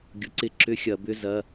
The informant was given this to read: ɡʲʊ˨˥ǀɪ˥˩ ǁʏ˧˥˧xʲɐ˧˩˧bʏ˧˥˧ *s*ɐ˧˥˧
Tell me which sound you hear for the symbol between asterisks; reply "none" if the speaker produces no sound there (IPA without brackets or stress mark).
z